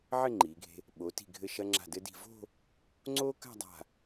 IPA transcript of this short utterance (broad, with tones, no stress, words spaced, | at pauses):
ʕɘ˥˧ ŋ͡ǃiː˩˧ɡʱe̤˧ | ɓo˩˧ti̤˧˩ ɡʱɘ˧˩ʃɐ˧ ŋ͡ǁa̤˧˩dɘ˧di̤˧˩ vo̤˥˧ | ŋ͡ǀoː˥ka̤˥˧dˤa̤˧˩